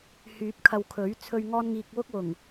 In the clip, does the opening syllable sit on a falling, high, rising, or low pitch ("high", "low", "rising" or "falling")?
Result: rising